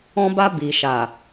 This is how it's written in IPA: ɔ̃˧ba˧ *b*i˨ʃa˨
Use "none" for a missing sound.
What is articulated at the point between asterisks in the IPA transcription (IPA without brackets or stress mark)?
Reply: b